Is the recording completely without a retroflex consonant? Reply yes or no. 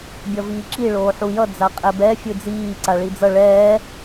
no